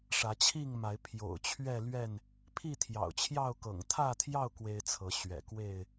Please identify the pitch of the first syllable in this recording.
rising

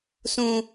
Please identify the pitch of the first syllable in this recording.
high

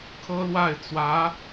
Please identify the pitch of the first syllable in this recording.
high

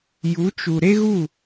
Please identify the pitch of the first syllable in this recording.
rising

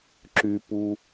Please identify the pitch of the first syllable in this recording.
low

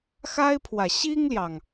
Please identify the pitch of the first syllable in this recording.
high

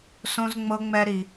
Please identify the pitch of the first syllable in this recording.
high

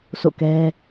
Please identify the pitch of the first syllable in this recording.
falling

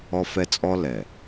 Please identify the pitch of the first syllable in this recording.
high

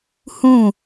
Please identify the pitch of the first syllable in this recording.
falling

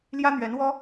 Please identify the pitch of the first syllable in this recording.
high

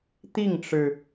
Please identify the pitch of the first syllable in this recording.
falling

